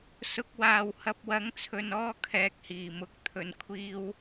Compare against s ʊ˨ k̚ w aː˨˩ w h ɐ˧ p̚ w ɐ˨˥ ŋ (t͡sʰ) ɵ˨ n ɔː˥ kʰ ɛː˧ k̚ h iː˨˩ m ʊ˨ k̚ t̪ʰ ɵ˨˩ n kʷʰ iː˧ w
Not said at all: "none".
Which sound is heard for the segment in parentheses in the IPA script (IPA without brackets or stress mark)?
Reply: t͡sʰ